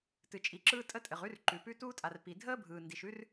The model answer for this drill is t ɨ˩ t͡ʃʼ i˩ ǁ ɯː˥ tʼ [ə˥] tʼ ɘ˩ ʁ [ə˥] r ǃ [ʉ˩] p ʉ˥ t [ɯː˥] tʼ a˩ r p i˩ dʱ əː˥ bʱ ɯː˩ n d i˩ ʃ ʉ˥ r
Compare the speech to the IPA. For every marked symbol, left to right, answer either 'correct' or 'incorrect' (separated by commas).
correct, incorrect, correct, incorrect